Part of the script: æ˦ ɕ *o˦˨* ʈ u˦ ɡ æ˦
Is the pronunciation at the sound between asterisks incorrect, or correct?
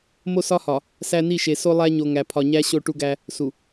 correct